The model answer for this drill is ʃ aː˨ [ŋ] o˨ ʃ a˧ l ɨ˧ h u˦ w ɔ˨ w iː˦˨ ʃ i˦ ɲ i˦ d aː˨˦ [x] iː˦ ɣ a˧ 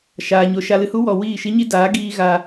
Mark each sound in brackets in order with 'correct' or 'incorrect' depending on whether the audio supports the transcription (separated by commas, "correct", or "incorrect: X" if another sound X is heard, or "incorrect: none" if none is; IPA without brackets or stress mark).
incorrect: ɲ, incorrect: ɡ